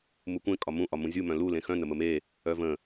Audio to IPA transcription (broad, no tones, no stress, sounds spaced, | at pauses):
m u kʷ ẽ kʼ ɒ m ũ ʔ ɒ m ũ zʲ u m œ̃ l u l ẽ x œ̃ n ə m ə m e | œ v ə̃